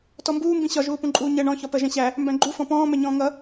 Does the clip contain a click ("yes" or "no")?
yes